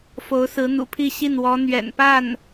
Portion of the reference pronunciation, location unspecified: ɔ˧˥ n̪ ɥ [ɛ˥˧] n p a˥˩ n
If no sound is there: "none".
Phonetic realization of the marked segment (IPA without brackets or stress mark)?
ɛ̰˨˩